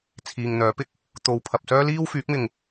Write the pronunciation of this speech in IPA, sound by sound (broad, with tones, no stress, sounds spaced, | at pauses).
t͡sʰ iː˨ ŋ n̪ œː˨˥ p ɪ˧ k̚ | t̪ o˨ w pʰ ɐ˨ p̚ s œː˥ l iː˥ w f yː˨˥ k̚ m ɪ˨ ŋ